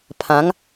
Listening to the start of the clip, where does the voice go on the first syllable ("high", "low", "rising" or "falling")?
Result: rising